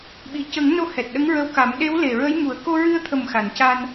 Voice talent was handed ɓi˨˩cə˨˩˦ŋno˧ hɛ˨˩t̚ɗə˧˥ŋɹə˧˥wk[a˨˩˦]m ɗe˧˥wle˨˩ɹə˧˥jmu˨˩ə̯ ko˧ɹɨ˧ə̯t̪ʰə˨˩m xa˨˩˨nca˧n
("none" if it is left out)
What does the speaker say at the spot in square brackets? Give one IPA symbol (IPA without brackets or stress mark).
a˨˩˦